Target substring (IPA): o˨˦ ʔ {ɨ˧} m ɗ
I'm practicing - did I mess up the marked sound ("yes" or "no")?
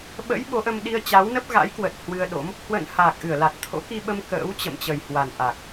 yes